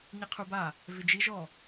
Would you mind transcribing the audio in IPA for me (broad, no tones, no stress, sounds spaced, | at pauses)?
ɲ i qʰ u b a | v ɪ d͡ʒ i ʒ ɔ